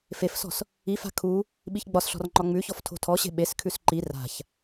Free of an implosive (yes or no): no